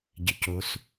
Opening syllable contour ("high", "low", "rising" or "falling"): low